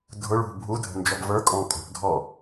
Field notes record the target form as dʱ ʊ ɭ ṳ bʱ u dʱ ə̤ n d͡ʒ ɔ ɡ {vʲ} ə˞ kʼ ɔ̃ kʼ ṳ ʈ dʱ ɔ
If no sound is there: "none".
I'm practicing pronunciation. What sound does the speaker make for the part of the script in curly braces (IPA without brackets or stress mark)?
v